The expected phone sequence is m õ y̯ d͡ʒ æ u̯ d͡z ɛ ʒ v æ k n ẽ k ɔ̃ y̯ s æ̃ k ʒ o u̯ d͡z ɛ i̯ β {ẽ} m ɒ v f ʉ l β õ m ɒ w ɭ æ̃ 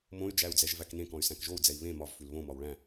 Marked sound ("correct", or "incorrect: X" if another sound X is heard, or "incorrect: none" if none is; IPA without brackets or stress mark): correct